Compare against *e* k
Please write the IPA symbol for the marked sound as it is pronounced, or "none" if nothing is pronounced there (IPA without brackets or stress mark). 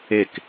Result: e